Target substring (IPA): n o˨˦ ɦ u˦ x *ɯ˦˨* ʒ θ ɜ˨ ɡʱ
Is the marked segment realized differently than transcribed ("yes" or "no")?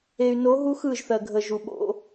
no